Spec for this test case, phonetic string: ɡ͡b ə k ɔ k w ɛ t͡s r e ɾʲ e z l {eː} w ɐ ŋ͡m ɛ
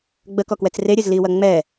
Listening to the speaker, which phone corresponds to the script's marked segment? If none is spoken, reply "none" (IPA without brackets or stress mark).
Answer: iː